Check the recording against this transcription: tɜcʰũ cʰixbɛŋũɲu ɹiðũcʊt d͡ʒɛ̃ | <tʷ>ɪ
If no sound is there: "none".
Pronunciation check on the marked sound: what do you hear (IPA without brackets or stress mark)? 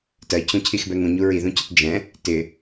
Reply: t